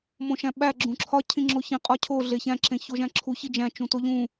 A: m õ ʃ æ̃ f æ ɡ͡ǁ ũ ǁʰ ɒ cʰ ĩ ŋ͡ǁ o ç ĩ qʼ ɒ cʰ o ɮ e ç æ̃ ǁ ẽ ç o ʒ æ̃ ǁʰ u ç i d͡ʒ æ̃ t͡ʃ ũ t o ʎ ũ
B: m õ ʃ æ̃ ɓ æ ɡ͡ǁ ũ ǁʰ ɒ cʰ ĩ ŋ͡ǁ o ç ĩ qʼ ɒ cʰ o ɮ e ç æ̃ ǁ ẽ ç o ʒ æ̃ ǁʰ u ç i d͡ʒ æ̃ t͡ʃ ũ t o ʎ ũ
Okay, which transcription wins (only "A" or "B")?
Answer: B